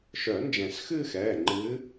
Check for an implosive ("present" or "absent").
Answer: absent